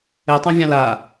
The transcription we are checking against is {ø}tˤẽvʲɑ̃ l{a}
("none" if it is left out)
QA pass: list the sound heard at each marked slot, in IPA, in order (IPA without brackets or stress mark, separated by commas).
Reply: ɛ, a